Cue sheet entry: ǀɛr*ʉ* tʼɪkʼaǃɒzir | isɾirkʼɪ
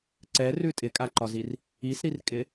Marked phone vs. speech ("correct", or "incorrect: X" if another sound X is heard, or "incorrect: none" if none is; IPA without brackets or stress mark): correct